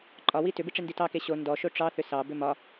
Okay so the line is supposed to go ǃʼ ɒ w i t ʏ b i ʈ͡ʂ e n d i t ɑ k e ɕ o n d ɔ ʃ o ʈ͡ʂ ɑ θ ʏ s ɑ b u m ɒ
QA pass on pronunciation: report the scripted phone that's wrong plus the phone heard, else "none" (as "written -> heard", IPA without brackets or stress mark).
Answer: u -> ʏ